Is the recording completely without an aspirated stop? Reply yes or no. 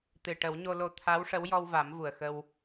no